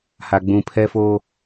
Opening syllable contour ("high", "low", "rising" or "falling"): low